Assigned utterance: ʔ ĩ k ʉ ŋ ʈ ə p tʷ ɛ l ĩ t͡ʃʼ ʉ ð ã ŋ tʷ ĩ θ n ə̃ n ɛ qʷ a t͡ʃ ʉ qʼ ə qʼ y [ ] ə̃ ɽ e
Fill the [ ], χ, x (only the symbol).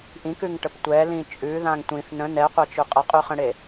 χ